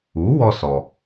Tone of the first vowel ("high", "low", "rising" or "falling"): rising